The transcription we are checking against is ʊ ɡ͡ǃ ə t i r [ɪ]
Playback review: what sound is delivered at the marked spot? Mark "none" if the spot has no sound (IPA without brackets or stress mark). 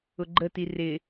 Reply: ɪ